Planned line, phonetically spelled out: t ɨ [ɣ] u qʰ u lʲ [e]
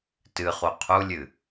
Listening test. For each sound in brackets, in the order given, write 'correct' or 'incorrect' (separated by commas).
incorrect, incorrect